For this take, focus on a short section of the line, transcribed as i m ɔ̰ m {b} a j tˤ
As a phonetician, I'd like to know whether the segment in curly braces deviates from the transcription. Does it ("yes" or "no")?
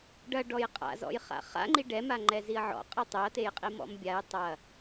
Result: yes